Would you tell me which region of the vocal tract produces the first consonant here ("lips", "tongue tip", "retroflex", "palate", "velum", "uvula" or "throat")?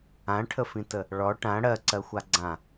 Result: retroflex